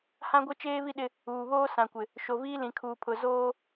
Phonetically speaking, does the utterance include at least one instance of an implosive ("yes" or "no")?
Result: yes